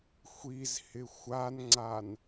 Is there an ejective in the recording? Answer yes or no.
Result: no